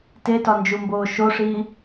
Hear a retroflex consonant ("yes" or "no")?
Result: yes